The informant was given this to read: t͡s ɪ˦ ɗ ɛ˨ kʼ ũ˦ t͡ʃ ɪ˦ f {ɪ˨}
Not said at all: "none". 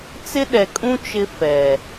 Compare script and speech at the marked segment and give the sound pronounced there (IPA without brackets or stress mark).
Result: ɛ˨